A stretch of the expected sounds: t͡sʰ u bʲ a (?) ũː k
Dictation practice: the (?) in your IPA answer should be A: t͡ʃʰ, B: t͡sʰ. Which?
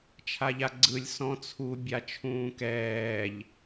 A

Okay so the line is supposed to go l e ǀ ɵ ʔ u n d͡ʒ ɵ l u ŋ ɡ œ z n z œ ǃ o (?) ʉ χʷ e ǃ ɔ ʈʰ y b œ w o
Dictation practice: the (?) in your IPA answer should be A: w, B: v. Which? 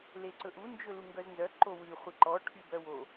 A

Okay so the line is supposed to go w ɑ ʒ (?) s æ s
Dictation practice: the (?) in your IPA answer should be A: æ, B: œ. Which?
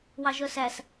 B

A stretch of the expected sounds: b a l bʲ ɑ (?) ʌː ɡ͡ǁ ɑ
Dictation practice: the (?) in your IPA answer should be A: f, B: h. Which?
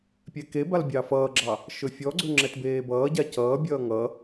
A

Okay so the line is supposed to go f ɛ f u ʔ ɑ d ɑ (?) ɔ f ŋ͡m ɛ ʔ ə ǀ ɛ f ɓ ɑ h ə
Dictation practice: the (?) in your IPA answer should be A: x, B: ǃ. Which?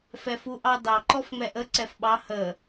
B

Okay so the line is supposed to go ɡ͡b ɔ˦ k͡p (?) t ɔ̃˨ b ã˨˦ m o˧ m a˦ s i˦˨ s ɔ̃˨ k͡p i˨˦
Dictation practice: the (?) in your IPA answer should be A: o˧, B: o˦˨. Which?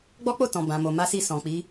B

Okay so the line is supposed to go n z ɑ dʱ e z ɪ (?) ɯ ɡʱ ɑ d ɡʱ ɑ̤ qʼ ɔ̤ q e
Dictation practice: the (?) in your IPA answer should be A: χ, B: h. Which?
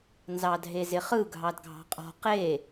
A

